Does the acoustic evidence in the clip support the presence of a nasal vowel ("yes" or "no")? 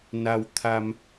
no